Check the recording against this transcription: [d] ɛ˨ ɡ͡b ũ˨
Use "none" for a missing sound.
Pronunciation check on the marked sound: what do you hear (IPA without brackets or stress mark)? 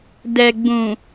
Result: d